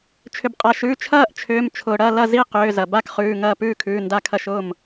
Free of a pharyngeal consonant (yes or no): yes